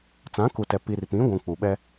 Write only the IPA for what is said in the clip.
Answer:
t͡sã˨˦ku˨tɛ˨ pi˨rpĩ˨˦ɡʷũ˨ k͡pu˨ɓɛ˦

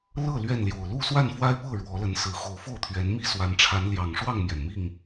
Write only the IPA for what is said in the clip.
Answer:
lɤ˥˨ lɥɛ˥˨nljo˨˩ʊ̯ lu˥˨swa˥˨nfwa˦ɪ̯ pɤ˥˨ ɻwɔ˨˦lə˨˦nsɹ̩˨˩ xo˨˦ʊ̯fo˥˨ʊ̯t̪ʰɥɛ˨˦nmi˦ swa˨˦nʈ͡ʂʰa˨˦n ljɑ˨˩ŋʂwɑ˥˨ŋmjɛ˩nmi˥˨ŋ

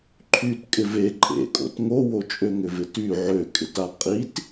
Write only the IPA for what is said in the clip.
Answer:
ǃʰyt kʼɪve ǃʼḛkʼo̰t ŋowo t͡ʃʼøŋʏvɪty ʕøkʼɪta qʼit

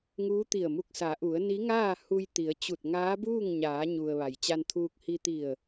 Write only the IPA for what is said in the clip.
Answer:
ŋuː˧˥t̪i˧˩ə̯mu˧k̚ sa˩˧ʔu˩˧ə̯ ni˧˥ŋaː˥˨ hu˧jt̪i˩˧ə̯ t͡ɕu˧˩t̚ŋaː˧˥buː˥˨ŋ ɲaː˩˧ɲu˩ə̯ ʋa˩jt͡ɕa˧nt̪ʰuː˧k̚ hi˧t̪i˧˩ə̯

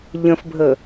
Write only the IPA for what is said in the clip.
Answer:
ʎə̃fbʱə

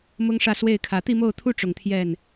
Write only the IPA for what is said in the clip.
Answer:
mʊ˥ŋʂä˥˧ swe˥˩ɪ̯kʰä˨˩ t̪i˥˧mo˥˩ʊ̯t̪ʰu˥ ʈ͡ʂʊ˨˩ŋt̪ʰjɛ˥˩n

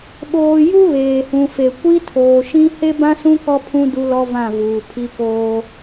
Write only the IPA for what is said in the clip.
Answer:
ɓoː˨ ju˦ βeː˨hũ˨fe˨ kʷi˦tʰoː˨ʃĩ˦ he˦bã˦sũ˦ kɔ˦pʰũ˦ du˦lɔ˦vã˦˨ vuː˨pʰi˦koː˦

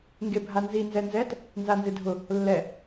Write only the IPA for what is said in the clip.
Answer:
ŋɡebʱanzi nzɛnzɛt | nzanzɪdʱʊ | lːɛ

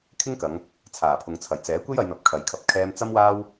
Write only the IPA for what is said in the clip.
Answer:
kʰɪ˥ŋkɐ˨˧ŋ | t͡sʰaː˨˩pʰʊ˨ŋt͡sʰɐ˨˩j t͡sɛː˨˥kʷe˥jɐ˨˧jn̪ɐ˨p̚ kʰɐ˨jkʰɐ˨˥p̚ kʰɛː˧mt͡sɐ˥mwaː˥w

